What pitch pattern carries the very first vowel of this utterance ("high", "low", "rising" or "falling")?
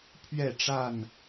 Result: falling